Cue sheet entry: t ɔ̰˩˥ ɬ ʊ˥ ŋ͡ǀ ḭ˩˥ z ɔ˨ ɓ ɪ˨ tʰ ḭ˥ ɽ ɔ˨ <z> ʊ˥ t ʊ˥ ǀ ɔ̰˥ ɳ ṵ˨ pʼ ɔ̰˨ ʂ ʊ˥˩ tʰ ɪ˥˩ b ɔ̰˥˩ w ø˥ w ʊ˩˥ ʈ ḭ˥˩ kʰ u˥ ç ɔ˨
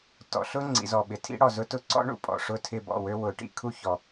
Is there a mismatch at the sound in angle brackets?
no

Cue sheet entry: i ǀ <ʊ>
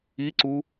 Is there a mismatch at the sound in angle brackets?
yes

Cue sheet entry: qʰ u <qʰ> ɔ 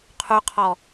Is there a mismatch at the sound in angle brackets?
no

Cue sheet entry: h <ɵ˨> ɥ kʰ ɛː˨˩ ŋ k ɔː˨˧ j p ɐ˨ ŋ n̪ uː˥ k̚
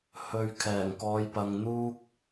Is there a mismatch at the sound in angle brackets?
no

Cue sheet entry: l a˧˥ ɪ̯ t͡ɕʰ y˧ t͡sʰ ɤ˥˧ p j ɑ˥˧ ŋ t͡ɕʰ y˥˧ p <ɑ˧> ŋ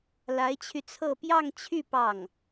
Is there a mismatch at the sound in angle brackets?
yes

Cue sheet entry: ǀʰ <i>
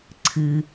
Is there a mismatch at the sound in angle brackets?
yes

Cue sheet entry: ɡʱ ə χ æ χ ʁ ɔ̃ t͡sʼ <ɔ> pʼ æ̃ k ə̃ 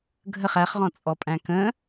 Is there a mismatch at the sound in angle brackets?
no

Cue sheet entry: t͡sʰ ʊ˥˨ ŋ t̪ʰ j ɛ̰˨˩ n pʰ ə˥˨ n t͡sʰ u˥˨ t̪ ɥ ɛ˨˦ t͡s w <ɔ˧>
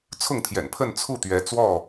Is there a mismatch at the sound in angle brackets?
yes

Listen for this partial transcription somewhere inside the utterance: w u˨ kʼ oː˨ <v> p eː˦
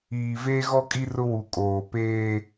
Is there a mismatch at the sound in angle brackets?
yes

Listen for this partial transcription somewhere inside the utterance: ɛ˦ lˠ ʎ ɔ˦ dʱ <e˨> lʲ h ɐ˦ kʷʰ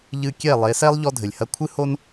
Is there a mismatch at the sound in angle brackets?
yes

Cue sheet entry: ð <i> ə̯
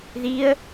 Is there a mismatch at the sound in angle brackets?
no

